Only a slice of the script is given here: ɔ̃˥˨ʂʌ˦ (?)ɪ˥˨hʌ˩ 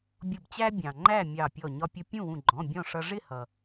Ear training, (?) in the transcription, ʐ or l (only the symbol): ʐ